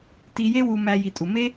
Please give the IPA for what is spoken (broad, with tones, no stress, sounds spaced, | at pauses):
t i˧ j e˦ w u˧ m æ˧ j i˨ tʼ u˨ m e˦